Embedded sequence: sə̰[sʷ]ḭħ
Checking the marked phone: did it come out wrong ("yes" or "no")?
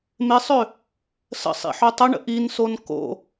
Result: yes